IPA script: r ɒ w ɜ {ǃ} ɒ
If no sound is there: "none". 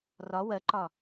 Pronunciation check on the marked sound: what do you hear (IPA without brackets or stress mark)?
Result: ǃ